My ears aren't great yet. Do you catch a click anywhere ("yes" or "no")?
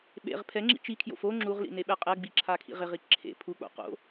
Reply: yes